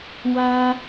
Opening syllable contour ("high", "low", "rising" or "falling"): high